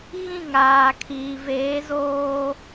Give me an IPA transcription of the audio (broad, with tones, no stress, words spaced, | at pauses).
ɣĩ˦˨ŋaː˨kʰiː˨veː˨˦ zoː˦